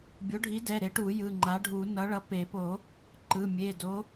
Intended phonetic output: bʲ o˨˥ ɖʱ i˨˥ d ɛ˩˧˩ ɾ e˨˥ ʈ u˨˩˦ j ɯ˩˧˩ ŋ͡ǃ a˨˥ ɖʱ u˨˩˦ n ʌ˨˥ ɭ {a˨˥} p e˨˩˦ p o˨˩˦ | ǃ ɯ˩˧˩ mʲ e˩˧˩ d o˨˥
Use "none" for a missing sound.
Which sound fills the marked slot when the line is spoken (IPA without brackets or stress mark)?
ʌ˨˥